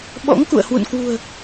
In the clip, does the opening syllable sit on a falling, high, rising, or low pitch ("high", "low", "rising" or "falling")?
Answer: rising